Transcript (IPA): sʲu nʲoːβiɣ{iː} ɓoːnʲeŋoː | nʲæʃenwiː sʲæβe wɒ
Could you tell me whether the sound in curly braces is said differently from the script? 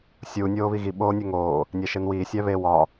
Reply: yes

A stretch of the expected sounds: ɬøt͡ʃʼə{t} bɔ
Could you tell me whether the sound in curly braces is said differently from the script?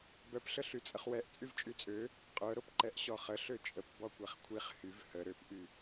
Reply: yes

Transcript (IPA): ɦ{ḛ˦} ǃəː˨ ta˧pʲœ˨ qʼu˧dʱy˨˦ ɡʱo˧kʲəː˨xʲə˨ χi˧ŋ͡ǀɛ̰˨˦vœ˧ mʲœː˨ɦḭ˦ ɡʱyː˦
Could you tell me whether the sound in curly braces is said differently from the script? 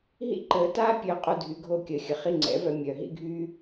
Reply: yes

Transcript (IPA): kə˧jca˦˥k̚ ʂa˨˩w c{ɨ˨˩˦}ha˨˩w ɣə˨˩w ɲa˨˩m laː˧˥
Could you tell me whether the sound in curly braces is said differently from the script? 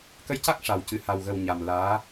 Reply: yes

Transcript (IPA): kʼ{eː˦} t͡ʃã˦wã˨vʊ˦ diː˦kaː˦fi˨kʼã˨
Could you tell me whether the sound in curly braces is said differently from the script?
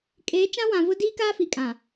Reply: yes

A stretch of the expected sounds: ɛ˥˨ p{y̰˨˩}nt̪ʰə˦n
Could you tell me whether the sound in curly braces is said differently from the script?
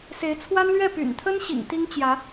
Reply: no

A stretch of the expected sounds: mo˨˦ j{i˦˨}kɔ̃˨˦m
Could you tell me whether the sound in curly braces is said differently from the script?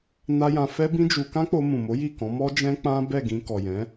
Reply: no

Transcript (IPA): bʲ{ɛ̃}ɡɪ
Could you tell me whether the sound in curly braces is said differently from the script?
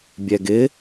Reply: yes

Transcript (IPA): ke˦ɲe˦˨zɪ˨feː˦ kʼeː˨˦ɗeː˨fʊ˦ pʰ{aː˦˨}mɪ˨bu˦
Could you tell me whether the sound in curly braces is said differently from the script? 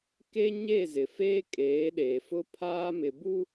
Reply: yes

